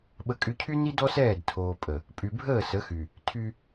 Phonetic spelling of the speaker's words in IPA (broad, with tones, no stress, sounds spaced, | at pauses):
ɓ ə˦ kʼ y˦ cʰ y˦ n i˦ d ɔ˦ s ɛː˦˨ d tʰ oː˨ pʼ ə˨ | pʼ y˨ bʱ əː˦˨ s ə˨˦ x y˨ | tʰ y˦